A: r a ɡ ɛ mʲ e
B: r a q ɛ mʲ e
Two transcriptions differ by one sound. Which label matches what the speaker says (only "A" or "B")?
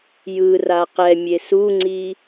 B